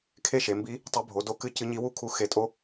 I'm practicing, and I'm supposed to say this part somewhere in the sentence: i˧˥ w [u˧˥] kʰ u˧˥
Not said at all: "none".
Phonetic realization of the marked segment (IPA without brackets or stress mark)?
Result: u˥